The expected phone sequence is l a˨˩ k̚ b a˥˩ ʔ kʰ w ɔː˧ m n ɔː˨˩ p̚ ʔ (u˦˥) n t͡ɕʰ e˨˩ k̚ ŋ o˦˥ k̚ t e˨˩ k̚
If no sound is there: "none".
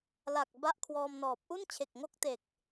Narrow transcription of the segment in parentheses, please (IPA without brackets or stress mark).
u˥˩